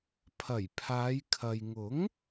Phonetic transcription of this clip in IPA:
pʰɐ˨˩jpʰaː˨˧jkʰɐ˨j ŋʊ˨˥ŋ

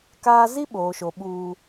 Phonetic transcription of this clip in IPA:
kaː˦ zi˦ɓoː˨ʃo˨ ɓuː˦

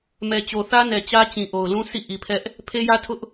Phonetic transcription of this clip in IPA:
mɛ˨t͡ɕo˨θä˦nɛ˨ t͡ɕä˦t͡ɕĩ˨ ʔo˨ʊ̯lũ˦ sḭ˦˨ʔi˨pʰɛ˦ʔ | pʰe˦jä˦tʰʊ˦ʔ

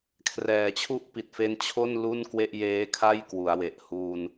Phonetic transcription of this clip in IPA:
kʰrɛː˩˦t͡ɕʰu˥˩ʔ pi˨˩t̚fe˦˥nt͡ɕʰo˥˩n lu˥˩nkwe˥˩ʔjeː˦˥kʰa˥˩j kwu˩˦a̯we˨˩ʔ hu˧n

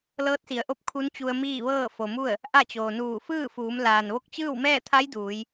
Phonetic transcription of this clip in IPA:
lɤː˧˥t̚si˩˧ə̯ʔo˧˥p̚ kʰu˧˥nt͡ɕu˧ə̯miː˥˨ʋɤː˥˨ fo˩mu˥˨ə̯ | ʔa˥˨t͡ɕoː˩ nuː˧˩fɯː˥˨fuː˩˧m laː˩nʋo˥˨k̚ t͡ɕɯː˥˨wmɛː˥˨t̪ʰa˧˥j duː˩˧j

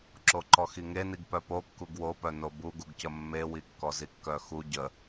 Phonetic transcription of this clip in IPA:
ǁoǃɔxiŋe niɡpœpo kːuɡwopœno buɡuɡcə mːewi kːɔzikːœxu ɟə

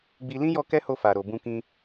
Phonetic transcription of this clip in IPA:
ɡ͡bi˧ lĩ˦jɔ˧ kɛ˦ho˧fa˨ ɾo˨bũ˧kĩ˧

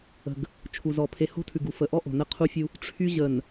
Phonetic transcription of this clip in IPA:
ə̤˨ɡ | t͡ʃʰu˨zɔ˨ pʰe˨ho̤˦tʰʉ˨ɡ u˨ fə˨ʔɔ˦ʔo̤˨ nə˦ qʰu˦fʲu˦ | ʈ͡ʂʰy˦ ʑə˨n

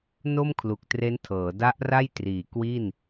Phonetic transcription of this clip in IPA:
no˥˩mkʰlu˨˩k̚ tre˦˥ntʰɤː˩˦da˦˥ʔra˥˩j triː˨˩kwi˥˩n

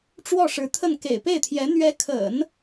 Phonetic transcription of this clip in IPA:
ʈ͡ʂwɔ˥˩ʂɻ̩˧˥t̪ʰə˥˩n kḛ˨˩ɪ̯pe˥˩ɪ̯t̪ʰjɛ˧˥ n̪ɥɛ˧˥kʰə̰˨˩˦n

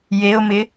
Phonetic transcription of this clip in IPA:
jeʊ̯mɪ

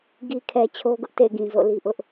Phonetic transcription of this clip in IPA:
ɡi˨kʰɛ˨ t͡ɕʰo˦ɡʊ˦ʔtḛ˦˨ɪ̯ ɡĩ˨zo̰˦˨li˦ʔʊ˦ʔ

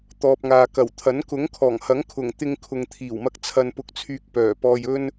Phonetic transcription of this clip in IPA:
t̪ɔː˨p̚ŋaː˨kɐ˨˩wt̪ʰɐ˨˥n kʊ˨˥ŋkʰɔː˨˩ŋhɐ˨˥ŋkʰʊ˨˩ŋ t̪ɪ˧ŋkʰʊ˨ŋt̪ʰiː˨˩wmɐ˧k̚ t͡sʰɐ˧npʊ˧k̚t͡sʰyː˧k̚ pœː˨˩ pɔː˧jɵ˥n

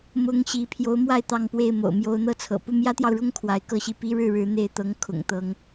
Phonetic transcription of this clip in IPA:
mʊ˧˥ŋ ɕi˧˥ pʰjo˧˥ʊ̯mwa˥˧ɪ̯ t̪ɑ˥˧ŋpwe˥˩ɪ̯ mo̰˨˩ʊ̯mjo˧˥ʊ̯n̪ɤ˥t͡sʰɤ̰˨˩ pu˥˩mjä˥t̪jɑ˨ʊ̯ɻʊ˥ŋ kʰwa˧˥ɪ̯kɤ˥ɕi˥˩ pi˥ɻɻ̩˥˩ɻɻ̩˧˥ n̪e˥˩ɪ̯t̪ɤ˧˥ŋkʰʊ̰˨˩ŋ t̪ɤ˧˥ŋ

